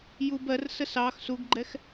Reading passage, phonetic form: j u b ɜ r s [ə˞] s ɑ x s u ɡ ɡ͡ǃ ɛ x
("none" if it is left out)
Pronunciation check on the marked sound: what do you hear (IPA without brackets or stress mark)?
ə